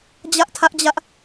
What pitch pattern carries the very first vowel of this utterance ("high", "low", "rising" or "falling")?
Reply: high